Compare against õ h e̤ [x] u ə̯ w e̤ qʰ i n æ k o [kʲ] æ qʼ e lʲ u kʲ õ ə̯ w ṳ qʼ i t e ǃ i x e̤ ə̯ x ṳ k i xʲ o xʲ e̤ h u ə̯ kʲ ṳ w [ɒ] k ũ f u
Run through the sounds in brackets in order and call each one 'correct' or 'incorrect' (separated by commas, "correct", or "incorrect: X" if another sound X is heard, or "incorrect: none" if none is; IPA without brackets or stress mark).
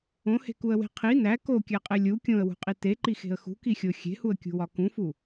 incorrect: k, correct, correct